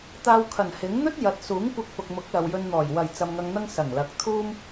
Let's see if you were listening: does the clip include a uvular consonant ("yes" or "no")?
no